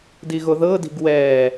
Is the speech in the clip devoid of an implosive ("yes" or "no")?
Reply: yes